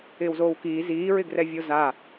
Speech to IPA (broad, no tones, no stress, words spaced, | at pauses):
ɪːwzoːwkiː ziːɹɪɡrɛvʲo za